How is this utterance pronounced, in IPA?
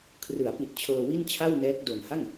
kʰ r ɯ˩˦ a̯ p i˨˩ t̚ t͡ɕʰ ɤː˧ w i˥˩ n t͡ɕʰ a˥˩ w n ɛː˦˥ k̚ d o˨˩ n h a˥˩ ŋ

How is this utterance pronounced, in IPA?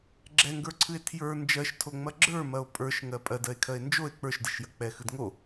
ɡ͡ǁ ɛ ŋ ɡ ə˞ ǀʰ ɨ e̯ tʰ j ə˞ n d͡ʒ ɜ ʃ tʰ o ŋ͡m ɐ ɡ͡ǁ ə˞ m ɐ o̯ pʼ ə˞ ʃ ŋ ɜ pʼ ɜ d ɜ e̯ kʰ ɜ e̯ n d͡ʒ o e̯ k͡p ə˞ ʃ d ɨ ʃ j ɐ k͡p ɛ x ɨ d ŋ o

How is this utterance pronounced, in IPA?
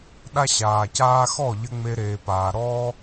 ɗ a˦ ɕ aː˨ c aː˦ x ɔ˦˨ ʎ ɘ˧ ŋ͡m e˧ ɾ eː˨ p aː˨ ɾ ɔː˦

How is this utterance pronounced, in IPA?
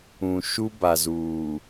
ũ˨ ʃ u˦ b a˨ z uː˨

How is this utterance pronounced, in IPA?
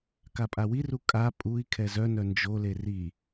k a pʼ a w i r u kʼ a pʼ u i̯ kʰ ɛ z œ n œ n d͡ʒ o l e r i

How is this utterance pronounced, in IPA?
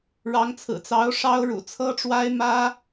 ɻ ɑ˧˥ ŋ t͡sʰ ɹ̩˨˩ t͡s ɑ˧˥ ʊ̯ ʂ ɑ˥ ʊ̯ ɻ ṵ˨˩ t͡sʰ ɤ˥ ʈ͡ʂ w a˥ ɪ̯ m ä˥

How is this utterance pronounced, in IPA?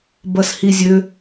b ɐ s h i zʲ ø

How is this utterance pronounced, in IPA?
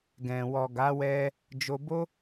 ɡ ɛ̃˨ w ɔ˨ ɡ a˨˦ w ɛ˦ | d͡ʒ o˧ b o˦

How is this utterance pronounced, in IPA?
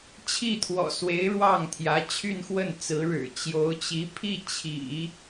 t͡ɕʰ i˥˩ t̪ʰ w ɔ̰˨˩ s w e˧˥ ɪ̯ ɻ w ɑ˥˩ ŋ t̪ʰ j ä˧˥ t͡ɕʰ y˥˧ n x w ə˥˩ n t͡s ɹ̩˧˥ ɻ ɻ̩˨˩ t͡ɕ j o˧˥ ʊ̯ t͡ɕ i˧˥ pʰ i˥˩ t͡ɕʰ ḭ˨˩˦

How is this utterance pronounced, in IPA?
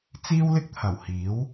t͡s iː˥ w l ɪ˥ k̚ t̪ʰ ɐ˨˩ w h iː˨˥ w

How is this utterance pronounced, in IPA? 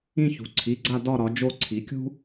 ĩ˦˨ ç ṳ˩˧ ǀʰ i˩˧˩ ɡ͡ǀ a˦˨ d ɒ˦˨ ɾ ɒ˩˧ d͡ʒ o˦˨ ǀʰ i˩˧ kʲ ṳ˥

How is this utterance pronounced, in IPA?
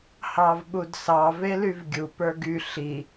h ɑ v ɓ u d s ɑ v e l y v ɡʲ u p ə˞ ɡ y ɬ i

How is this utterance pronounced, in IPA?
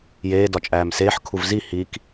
j eː d ɒ t͡ʃʼ æː m s eː ħ kʰ u v z i h i k

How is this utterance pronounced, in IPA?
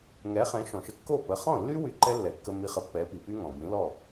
ŋ ɛ˩˥ χ ɛ̃˩˥ ʃ ɔ̃˩ ʃ ə˧ kː o˥˩ p ə˩˥ χ ɔ̃˥˩ lː y˥ w y˧ ǃ ɛ˥ lː ɛ˩ kː ə˧ m i˧ χ ə˩˥ pː ɛ˩˥ p i˩ p y˥ ŋ ɔ̃˩ b ĩ˩˥ l ɔ˥˩

